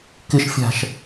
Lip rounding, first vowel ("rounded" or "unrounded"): unrounded